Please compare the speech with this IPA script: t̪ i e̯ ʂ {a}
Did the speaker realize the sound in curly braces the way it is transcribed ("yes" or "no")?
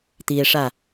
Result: yes